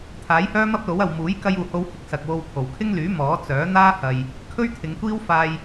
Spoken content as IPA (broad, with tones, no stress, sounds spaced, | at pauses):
t̪ʰ aː˨˥ j h œː˥ m ɐ˥ p̚ l o˨˥ w ɐ˨ w m uː˨˥ j k ɐ˧ j uː˨ h o˧ w h ɪ˧ k̚ s ɐ˨ k̚ w o˧ w kʰ o˨˩ w kʰ ɪ˥ ŋ l yː˨˥ m ɔː˨˥ t͡s œː˨˥ n̪ aː˥ h ɐ˨ j | kʰ ɵ˥ ɥ t̪ʰ ɪ˨˧ ŋ kʷ iː˥ w f aː˧ j